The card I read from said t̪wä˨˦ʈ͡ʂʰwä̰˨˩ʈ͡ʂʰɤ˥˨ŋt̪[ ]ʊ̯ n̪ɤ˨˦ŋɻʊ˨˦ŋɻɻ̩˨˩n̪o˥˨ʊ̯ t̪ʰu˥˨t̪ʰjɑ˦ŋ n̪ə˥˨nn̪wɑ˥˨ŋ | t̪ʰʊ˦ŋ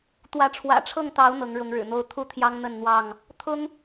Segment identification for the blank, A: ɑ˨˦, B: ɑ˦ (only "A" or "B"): A